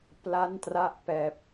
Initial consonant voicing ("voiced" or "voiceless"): voiceless